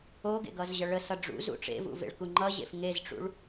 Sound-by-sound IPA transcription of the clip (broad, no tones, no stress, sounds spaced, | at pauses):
o ɡ ḛ ɡ ʌ z ʑ ʌ ɭ ə s ʌ ɖ͡ʐ ṵ z ṵ ʈ͡ʂ ḛ v ṵ v ḛ ɭ k u ŋ͡ǃ ʌ ʑ ḛ f ŋ e z ʈ͡ʂ ṵ ɭ